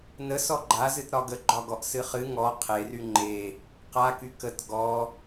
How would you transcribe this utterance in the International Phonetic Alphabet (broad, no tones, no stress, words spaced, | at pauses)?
nə sɔɡ͡ǃazɨt ɾɒɡəɡ͡ǃɒɡɔʔ sɨχɨ ŋɔ qʰery ŋ͡ǃe | qaky kət ɡɔ